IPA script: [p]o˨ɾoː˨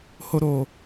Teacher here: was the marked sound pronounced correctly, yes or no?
no